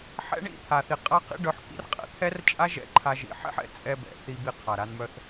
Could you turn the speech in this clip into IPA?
ħ ɛ̰˦ ɳ ḭ˦˨ t̪ʰ a˨ θ i˨ qʼ a˧ q ḭ˧ ɖ œ˧ ħ k ḭ˦ r qʼ ɛ̰˨ t̪ʰ ɛ˦ r t͡ʃʼ a˦ ʒ ɛ̰˦ ǃʰ a˧ ʒ ḭ˨ ħ ɛ̰˦ ħ ɛ̰˨ t͡sʼ ɛ˧ b ɛ̰˨ θ i˧ b i˧ qʰ a˨ ɾ a˧ n m œ˧ θ

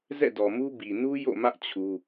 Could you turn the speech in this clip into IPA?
z ɛ̰˦˨ d ɔ˨ m u˦ b i˨ n u˦ j o̰˦˨ m ä˦ ʔ t͡ɕʰ u˦

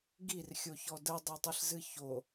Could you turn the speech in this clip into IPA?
ɡ i r xʲ o ç ɔ d ə dˤ o tˤ ɨ ɬ z ɨ ç o

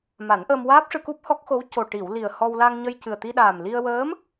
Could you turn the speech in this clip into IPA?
m a˨˩˦ n ʔ əː˧ m w aː˦˥ p̚ ʂ ɨ˧ k u˦˥ p̚ h ɔ˦˥ k̚ x o˧˥ w c o˨˩ ʈ i˨˩˨ w l i˨˩ ə̯ h ɔ˧ w l a˧ ŋ ɲ ə˧ j c ɨ˨˩ ə̯ t̪ i˧ ɗ aː˨˩ m l i˧ ə̯ w əː˧˥ m

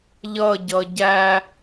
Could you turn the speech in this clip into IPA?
ʎ ʌ ɟ ʌ ɟ æ

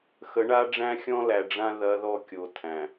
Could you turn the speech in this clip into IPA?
x ə˨˦ ɳ a˦ ɖ͡ʐ æ̃˦ xʲ ɔ̃˦ l æ˨ ɖ͡ʐ ã˦ ð ɐ˦ ð ɔ˦ kʲ o˨ tʰ æ̃˨

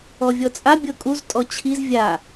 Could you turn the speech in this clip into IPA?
ɔ vʲ ɔ t͡sʼ a bʲ ɤ kʼ u z tʼ ɔ t͡ɕʰ i z vʲ a

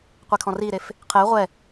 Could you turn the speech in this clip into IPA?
qʷ e kʰ ɔ̃ r i ɾ e f | qʰ e ʁʷ ɛ

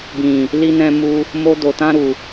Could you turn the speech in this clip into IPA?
b ĩ˨ | l i˧ n ɛ̃˧ m u˧ | m o˧ d o˨ t ã˧ ɾ u˨

